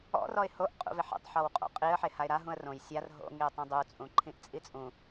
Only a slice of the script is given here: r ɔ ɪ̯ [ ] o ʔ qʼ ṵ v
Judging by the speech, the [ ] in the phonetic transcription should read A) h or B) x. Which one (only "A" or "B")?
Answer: A